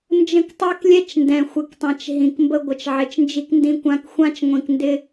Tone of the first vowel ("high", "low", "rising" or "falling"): falling